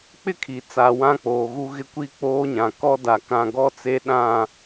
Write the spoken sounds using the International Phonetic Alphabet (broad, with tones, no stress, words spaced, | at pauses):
k͡pɪ˦kʰi˨t͡sa˨ wã˦k͡poː˨ɣu˦ɣɪ˦ kʷi˦k͡poː˦ɲã˨kɔ˦ da˨kã˦˨ ɡɔ˦t͡se˦ɗã˦˨